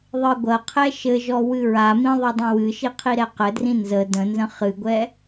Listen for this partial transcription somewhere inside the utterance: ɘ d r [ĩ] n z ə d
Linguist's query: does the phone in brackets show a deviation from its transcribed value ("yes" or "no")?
no